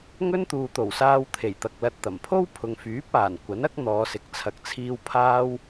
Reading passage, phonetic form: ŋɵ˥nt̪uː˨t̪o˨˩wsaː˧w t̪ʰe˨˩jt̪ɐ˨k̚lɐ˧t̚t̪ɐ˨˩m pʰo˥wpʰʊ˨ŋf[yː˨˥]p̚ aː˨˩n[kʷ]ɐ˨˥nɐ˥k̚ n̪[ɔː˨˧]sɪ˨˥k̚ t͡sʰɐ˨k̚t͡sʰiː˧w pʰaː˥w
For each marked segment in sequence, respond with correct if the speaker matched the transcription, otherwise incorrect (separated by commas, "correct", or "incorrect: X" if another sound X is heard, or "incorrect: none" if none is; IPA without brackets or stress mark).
correct, correct, correct